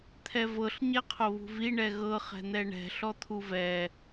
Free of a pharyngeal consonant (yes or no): yes